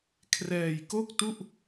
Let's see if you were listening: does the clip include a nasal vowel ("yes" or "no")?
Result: no